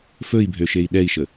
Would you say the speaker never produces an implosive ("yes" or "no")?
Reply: no